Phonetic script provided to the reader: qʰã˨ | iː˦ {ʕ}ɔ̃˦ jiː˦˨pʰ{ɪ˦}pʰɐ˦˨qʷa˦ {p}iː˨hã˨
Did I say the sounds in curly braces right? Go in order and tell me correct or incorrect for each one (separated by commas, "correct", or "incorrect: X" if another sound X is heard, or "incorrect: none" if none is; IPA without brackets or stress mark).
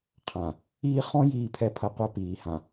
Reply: incorrect: χ, incorrect: ɛ˦, correct